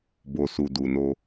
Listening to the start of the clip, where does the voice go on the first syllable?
low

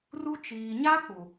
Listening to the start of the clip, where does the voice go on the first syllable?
high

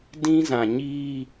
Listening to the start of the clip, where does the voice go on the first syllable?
high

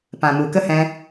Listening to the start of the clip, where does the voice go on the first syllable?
low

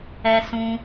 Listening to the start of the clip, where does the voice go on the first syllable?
high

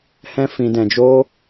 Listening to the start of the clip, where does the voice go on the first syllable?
high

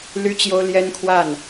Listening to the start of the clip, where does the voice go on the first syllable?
high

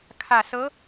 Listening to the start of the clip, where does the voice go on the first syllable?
low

